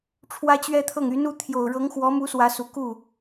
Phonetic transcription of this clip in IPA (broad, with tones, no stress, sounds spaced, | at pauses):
ʈ͡ʂʰ w ä˥ t͡ɕ ɥ ɛ˥ t̪ʰ ɤ˥˩ ŋ y˧˥ n u˧˥ t̪ʰ j o˨˩ ʊ̯ ɻ ɤ˧˥ ŋ x w ɔ˧˥ m u˧˥ s w ä˧˥ s u˨˩ k u˥˩